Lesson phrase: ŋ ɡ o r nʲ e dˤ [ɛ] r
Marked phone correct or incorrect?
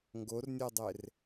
incorrect